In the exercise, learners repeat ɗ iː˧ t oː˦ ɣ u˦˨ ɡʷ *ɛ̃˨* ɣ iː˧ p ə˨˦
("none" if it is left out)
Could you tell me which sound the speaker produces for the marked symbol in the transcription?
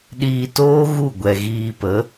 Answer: ɛ˨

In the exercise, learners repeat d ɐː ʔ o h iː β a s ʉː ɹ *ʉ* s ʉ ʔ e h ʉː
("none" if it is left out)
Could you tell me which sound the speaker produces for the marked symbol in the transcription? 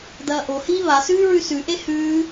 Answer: ʉ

